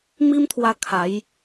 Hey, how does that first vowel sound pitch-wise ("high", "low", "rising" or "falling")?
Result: high